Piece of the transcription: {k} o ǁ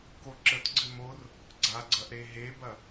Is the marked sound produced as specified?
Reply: yes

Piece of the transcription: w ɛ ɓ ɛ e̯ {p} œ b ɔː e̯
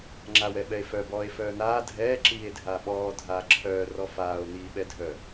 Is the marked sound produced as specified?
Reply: no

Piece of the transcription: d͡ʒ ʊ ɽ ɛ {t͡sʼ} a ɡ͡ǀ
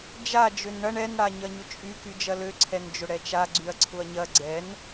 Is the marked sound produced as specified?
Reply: no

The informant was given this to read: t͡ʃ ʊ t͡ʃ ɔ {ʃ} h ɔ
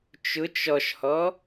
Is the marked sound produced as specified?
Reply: yes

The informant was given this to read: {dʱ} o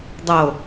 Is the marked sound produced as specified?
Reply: no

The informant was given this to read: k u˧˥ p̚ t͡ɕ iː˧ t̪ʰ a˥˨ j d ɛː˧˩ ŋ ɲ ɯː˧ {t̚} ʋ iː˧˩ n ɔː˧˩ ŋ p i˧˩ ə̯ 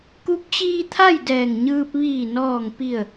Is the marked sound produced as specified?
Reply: no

